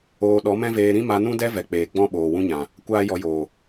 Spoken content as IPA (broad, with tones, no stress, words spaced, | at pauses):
oː˧ ɗɔ˨˦mɛ̃˦veː˧ ɾĩ˦ma˧nũ˦dɛ˦ vɛ˨k͡peː˨ ɡ͡bɔ̃˦ ɓoː˨wũ˦ɲã˨ | kʷaː˦jɔ˧joː˨